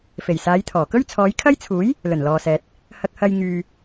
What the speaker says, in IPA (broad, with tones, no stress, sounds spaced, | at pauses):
f e˨˩ j s aː˨˧ j t̪ʰ ɔː˨˩ k ɵ˥ ɥ t͡sʰ ɔː˨˧ j kʰ ɐ˥ j t͡sʰ uː˨˥ j | l ɵ˨˩ n l ɔː˨ s ɛː˨ t̚ | h ɐ˧ k̚ h ɐ˧ j ŋ yː˧